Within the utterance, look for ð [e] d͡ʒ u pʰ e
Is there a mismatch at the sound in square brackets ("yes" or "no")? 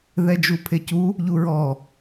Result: yes